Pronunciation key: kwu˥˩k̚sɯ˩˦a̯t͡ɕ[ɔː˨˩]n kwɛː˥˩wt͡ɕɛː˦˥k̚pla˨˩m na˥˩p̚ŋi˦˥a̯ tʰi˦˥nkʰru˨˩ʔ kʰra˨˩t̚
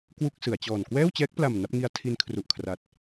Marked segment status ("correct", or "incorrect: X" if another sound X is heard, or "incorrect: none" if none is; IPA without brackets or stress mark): correct